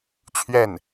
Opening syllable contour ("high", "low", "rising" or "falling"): falling